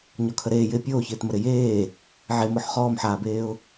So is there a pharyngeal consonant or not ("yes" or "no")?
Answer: yes